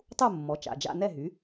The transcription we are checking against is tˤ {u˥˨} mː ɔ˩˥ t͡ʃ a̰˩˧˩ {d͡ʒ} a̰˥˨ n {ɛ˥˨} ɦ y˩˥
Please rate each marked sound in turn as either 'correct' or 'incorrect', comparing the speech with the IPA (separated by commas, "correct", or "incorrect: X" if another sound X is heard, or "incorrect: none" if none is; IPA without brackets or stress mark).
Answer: correct, correct, correct